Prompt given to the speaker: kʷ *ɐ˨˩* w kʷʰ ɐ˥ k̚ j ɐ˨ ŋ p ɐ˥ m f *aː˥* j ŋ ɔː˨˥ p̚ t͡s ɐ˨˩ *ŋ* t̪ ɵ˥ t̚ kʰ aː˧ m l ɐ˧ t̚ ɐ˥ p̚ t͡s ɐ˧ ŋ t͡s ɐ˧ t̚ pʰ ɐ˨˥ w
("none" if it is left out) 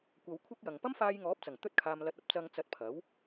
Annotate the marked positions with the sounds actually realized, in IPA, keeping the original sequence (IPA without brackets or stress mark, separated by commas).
ɐ˨˧, aː˧, ŋ